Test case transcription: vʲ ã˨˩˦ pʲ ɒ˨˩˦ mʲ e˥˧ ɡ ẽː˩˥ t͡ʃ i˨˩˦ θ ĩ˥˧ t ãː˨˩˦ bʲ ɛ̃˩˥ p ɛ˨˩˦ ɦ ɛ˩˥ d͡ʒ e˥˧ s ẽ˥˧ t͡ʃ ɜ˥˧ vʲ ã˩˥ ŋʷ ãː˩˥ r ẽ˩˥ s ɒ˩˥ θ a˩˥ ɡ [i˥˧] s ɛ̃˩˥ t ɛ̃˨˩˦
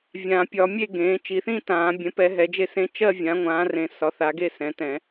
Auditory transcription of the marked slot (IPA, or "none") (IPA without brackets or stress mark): e˥˧